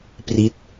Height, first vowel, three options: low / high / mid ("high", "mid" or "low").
high